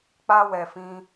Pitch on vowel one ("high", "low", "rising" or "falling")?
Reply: high